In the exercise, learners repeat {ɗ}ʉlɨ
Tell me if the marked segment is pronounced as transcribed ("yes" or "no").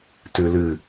no